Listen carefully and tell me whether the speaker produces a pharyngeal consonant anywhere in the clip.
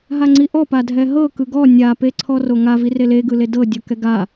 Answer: no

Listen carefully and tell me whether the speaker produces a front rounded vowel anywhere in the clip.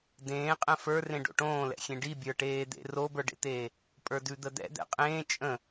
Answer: no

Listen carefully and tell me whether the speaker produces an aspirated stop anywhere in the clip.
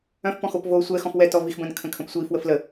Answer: yes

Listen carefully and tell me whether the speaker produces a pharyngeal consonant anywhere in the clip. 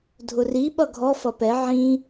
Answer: yes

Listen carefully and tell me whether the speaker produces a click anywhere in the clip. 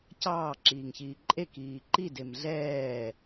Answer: yes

